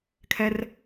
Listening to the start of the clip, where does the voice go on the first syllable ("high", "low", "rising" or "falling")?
high